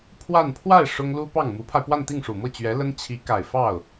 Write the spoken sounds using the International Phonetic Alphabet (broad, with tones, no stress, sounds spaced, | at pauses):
pʰ w a˥˧ n pʰ w a˥˩ ɪ̯ ʂ ʊ˥ ŋ l u˥ p ɑ˥˩ ŋ m u˧˥ pʰ a˧ ɪ̯ p w a˥˧ n t̪ i˥˩ ŋ ʂ u˨˩ m ɤ˥˩ t͡ɕ ɥ ɛ˧˥ l ə˥ n t͡ɕʰ i˧˥ k a˨˩ ɪ̯ f ɑ˥˩ ʊ̯